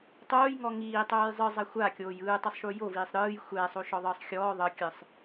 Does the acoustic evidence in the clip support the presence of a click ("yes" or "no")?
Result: no